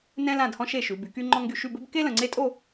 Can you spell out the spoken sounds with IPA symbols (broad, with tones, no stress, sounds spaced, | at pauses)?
n ɛ̃˥ l ã˥˧ d h ɔ̃˥ ʃ e˥˧ ʃ ʉ˨˦ b y˨˦ k y˥ ŋ͡ǃ ɔ̃˥ ŋ ɡ y˥˧ ʃ y˥˧ b ɘ˥ b k e˥ l ə̃˨ ŋ͡ǀ e˥ tʼ o˥˧